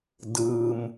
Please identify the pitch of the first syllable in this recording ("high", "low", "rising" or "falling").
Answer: low